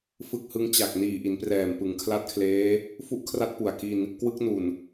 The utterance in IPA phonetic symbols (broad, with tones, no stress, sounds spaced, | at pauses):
f ɯ˦˥ k̚ h ɯ˦˥ ŋ t͡ɕ a˨˩ k̚ n iː˨˩ ʔ i˩˦ n p r ɛː˨˩ m p ɯ˩˦ ŋ kʰ l a˦˥ t̚ kʰ l eː˦˥ | f u˦˥ ʔ kʰ r a˦˥ t̚ p u˨˩ a̯ k i˧ n | k w ɯ˦˥ k̚ n u˨˩ n